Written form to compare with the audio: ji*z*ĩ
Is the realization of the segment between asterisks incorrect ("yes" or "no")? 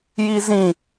no